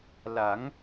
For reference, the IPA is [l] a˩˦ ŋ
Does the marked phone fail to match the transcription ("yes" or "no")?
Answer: no